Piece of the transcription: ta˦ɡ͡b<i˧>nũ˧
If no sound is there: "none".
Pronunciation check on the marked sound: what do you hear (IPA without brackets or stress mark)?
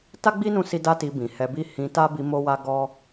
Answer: i˦